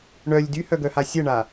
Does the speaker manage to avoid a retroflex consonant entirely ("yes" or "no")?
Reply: no